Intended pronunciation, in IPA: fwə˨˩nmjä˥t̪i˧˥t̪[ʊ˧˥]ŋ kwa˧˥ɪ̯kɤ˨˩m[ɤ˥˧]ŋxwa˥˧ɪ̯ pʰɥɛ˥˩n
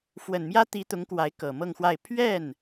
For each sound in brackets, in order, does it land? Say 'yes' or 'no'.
yes, yes

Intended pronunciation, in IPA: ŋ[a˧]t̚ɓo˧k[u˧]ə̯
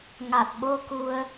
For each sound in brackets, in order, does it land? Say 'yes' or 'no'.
no, yes

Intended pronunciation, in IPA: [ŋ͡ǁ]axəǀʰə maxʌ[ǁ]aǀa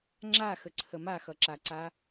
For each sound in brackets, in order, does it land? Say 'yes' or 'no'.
yes, yes

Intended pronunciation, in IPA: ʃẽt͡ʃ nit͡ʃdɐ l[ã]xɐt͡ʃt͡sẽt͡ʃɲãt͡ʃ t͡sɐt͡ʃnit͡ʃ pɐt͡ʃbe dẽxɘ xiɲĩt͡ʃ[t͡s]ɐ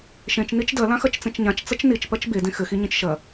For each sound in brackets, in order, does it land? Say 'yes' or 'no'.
yes, no

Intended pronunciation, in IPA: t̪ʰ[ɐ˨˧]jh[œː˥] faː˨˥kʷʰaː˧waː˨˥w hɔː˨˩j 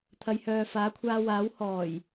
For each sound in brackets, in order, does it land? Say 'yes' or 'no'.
yes, no

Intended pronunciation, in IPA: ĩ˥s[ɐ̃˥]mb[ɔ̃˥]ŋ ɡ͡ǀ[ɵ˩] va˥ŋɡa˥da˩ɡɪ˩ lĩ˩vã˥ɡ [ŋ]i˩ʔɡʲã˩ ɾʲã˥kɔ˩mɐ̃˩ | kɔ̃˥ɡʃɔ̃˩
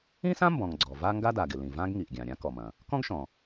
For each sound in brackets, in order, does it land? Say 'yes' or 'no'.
no, no, no, yes

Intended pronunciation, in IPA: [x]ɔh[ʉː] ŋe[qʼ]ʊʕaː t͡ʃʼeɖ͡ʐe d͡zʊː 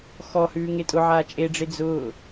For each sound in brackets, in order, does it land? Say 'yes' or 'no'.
yes, yes, no

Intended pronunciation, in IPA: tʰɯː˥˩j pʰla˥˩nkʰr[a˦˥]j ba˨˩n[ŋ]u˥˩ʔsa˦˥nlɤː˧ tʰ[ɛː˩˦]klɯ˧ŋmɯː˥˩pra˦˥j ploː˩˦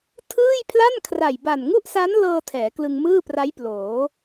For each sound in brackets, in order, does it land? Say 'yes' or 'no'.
no, yes, yes

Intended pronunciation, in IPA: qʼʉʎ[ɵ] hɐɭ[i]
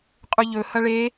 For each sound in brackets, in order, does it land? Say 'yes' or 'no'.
yes, no

